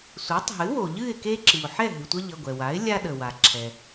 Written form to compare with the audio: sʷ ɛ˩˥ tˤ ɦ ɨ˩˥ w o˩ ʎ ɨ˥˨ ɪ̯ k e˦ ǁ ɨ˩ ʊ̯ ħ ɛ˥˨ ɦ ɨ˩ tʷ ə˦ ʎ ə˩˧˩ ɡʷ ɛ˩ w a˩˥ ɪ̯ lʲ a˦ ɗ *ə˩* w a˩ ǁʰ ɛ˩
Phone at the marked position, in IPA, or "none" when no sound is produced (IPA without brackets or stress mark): ə˩